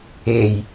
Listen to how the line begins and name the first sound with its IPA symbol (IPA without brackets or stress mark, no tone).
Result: e